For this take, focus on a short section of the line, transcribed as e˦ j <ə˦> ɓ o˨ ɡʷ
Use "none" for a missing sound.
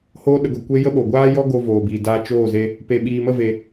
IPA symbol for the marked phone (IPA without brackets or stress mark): ə˦